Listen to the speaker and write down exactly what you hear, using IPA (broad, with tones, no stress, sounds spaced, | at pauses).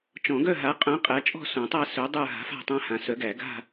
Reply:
t͡ʃ ɔ̃˨˩˦ ɡ œ˦˨ ɦ a˨˥ qʼ œ̃˨˥ qʼ æ˨˥ t͡ʃʼ ɔ̤˦˨ s õ˨˩˦ tˤ a˦˨ s œ˨˥ dˤ ə˞˦˨ ɦ a̤˨˥ f a̤˦˨ tˤ æ̃˦˨ h ã˨˩˦ s œ˨˥ ɡ æ˨˩˦ ɡ a̤˦˨